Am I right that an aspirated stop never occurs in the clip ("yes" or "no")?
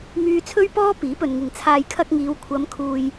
no